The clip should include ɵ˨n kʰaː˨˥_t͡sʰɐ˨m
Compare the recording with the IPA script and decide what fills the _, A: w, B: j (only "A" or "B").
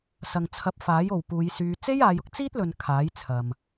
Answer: B